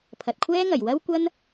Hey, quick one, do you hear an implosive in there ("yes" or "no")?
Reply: no